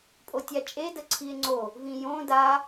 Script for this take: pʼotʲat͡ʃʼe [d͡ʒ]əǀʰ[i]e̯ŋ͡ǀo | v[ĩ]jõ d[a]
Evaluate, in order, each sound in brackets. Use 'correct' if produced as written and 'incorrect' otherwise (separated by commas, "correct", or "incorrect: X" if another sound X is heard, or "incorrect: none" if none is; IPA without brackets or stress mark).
incorrect: d, correct, correct, correct